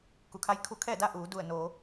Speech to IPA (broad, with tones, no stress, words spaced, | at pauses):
ku˩˧kʰa˧˥j kʰu˧kʰɛː˥˨da˥˨ ʔuː˩˧du˧˩ə̯noː˩˧